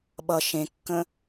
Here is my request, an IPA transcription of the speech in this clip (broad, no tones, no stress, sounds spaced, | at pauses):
ɓ ʌ ʃ ẽ kː ə̃